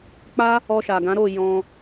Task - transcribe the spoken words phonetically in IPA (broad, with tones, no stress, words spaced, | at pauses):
k͡pa˦ | ɔ˧ʃa˨ɡã˨˦ ɾo˦˨ jɔ̃˧